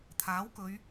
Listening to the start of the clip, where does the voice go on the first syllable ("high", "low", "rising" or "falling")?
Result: rising